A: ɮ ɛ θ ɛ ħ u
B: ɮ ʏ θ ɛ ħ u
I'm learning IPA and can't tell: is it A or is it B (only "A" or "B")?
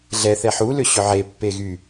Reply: A